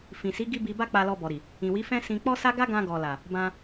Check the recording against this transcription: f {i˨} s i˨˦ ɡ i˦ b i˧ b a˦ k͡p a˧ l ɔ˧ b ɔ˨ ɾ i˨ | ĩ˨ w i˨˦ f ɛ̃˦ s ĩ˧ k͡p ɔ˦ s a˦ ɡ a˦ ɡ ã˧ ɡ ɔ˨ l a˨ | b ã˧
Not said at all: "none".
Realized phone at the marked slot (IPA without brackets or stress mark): ĩ˨